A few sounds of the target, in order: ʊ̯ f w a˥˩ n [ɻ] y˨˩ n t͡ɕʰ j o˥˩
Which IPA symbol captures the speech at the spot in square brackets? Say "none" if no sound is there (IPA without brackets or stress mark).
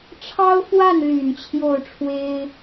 l